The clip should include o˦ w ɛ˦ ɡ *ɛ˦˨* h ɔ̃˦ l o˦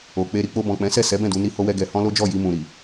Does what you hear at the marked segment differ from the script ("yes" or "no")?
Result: yes